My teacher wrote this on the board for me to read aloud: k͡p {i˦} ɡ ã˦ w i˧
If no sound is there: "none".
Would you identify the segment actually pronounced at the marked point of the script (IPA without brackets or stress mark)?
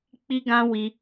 i˦